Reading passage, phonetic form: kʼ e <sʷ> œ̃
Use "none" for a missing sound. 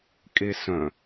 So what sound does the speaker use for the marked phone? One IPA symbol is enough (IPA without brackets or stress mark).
s